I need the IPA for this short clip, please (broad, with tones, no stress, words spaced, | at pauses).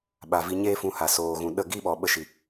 ɓa˨ vi˧ɲeː˦fũ˧ ha˨soː˨ ɣũ˨ɗə˦˨ ɡi˦ɓɔ˨ɓə˧ʃi˨